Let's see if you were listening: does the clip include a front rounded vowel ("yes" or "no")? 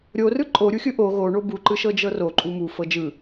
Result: no